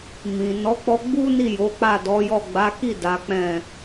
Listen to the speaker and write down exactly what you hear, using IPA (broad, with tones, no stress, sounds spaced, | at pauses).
m ĩ˨ n ɔ˨˦ k͡p ɔ˧ ɡ͡b u˦ n i˦˨ j o˨˦ k͡p a˦˨ d ɔ˨˦ j ɔ˦˨ ɡ͡b a˨˦ k i˦˨ d a˨˦ k͡p ɛ̃˦˨